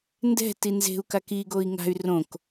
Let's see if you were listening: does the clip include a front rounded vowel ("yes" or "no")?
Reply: yes